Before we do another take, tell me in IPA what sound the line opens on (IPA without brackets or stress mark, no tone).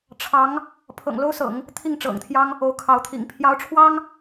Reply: ʈ͡ʂʰ